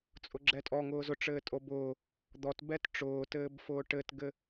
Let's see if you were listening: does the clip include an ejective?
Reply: yes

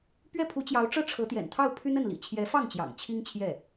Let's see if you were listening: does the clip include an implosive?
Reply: no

